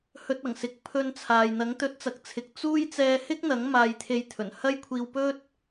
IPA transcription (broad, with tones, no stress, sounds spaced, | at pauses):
h ɵ˧ t̚ ɐ˨˩ ŋ s ɪ˨ k̚ pʰ ɵ˧ n t͡sʰ aː˨ j n̪ ɐ˨˥ ŋ t̪ ɵ˨˥ t̚ t͡s ɐ˨ k̚ t͡sʰ ɪ˨ k̚ t͡s uː˥ j t͡s ɛː˧ h ɪ˥ k̚ n̪ ɐ˨˥ ŋ m aː˧ j t̪ʰ e˧ j t̪ʰ ɵ˨˩ n h ɐ˥ j kʷʰ iː˧ w p ɵ˥ t̚